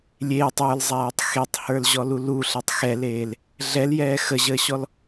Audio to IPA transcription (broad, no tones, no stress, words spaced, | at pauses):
lʲeːtˤ ə˞lzˤaːtˤ xetˤhə˞lʑɔlu luɬetˤ xɛleːl | ɮɛljɛː xəʑəːɕɔl